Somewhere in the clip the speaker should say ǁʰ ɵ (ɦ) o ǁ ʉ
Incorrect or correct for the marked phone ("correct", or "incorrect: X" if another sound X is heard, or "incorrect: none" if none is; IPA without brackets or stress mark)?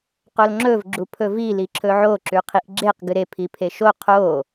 incorrect: ʕ